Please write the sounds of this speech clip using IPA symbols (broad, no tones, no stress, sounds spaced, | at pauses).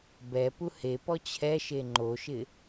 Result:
b ɛ p u h e p ɔ t͡ɕʰ ɛ ʃ e ŋ͡ǃ o ʃ ɪ